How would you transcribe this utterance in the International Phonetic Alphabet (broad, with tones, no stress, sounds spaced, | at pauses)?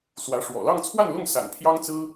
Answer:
s w ä˧˥ ʂ w ɔ̰˨˩ l ɑ˥˧ ŋ t͡sʰ w a˥˧ n l ʊ˥˩ ŋ s a̰˨˩ n pʰ j ɑ˥ ŋ t͡s ɹ̩˥